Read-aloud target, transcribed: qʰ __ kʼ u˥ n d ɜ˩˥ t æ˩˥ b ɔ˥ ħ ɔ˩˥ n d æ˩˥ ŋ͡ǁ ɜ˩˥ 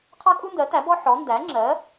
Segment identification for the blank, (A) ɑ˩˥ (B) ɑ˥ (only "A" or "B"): B